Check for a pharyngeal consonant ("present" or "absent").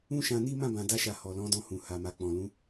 absent